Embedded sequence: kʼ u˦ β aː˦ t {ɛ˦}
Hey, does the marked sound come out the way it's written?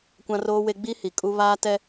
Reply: yes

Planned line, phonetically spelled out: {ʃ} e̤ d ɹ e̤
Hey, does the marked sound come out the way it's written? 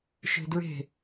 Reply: yes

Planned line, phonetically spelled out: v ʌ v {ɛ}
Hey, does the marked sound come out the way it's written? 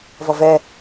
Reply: yes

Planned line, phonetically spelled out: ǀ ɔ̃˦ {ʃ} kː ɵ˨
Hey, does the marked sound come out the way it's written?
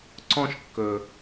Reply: yes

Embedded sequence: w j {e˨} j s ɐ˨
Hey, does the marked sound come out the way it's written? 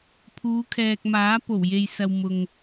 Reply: yes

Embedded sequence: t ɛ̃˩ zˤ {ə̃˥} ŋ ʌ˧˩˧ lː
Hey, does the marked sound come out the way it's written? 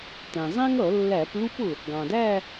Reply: no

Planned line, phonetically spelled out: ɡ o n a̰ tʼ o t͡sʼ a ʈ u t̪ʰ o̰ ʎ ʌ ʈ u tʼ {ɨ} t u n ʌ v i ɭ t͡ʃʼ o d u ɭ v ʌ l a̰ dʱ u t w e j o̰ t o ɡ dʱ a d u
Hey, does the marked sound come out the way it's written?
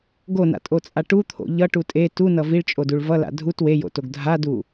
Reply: no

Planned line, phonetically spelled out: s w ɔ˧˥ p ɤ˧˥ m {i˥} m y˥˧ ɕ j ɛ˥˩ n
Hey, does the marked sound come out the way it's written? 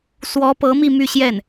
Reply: no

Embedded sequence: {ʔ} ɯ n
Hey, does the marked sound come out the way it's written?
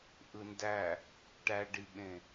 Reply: yes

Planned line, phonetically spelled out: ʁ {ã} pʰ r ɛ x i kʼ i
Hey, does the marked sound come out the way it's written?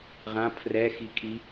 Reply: yes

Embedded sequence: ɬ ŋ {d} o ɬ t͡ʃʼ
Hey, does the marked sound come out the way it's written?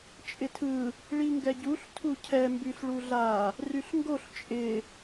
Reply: no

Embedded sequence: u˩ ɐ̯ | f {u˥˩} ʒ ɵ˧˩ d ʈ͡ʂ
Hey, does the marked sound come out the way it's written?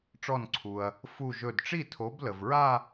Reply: no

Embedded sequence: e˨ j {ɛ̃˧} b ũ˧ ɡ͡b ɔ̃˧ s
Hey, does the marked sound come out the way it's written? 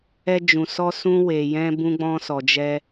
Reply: yes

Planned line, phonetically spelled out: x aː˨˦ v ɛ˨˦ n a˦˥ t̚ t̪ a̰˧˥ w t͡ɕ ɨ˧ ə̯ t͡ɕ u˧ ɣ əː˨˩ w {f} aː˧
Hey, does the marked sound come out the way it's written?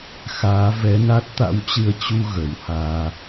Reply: no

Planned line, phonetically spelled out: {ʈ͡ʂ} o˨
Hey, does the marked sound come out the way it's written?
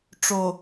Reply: yes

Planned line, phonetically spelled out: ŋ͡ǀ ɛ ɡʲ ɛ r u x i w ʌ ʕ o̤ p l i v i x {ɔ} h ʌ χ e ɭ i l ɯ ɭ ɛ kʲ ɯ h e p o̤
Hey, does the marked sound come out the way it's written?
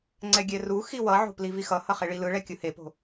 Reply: no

